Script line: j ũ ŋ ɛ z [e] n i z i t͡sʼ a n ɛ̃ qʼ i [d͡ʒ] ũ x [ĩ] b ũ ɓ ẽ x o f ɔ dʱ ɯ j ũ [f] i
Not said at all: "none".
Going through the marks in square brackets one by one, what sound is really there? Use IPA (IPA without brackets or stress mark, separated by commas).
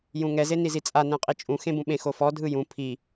e, t͡ʃʼ, ẽ, pʰ